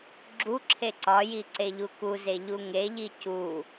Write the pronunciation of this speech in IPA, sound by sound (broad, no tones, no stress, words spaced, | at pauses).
ɡ͡ǁuǁʰe ǀɒji ǀeʎukuze ʎuŋeʎi cu